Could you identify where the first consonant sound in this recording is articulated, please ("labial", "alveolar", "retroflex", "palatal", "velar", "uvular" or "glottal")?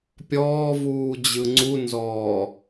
labial